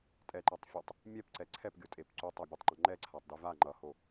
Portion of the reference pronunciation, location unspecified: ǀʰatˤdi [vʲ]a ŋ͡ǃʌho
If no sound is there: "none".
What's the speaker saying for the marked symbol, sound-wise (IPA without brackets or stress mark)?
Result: v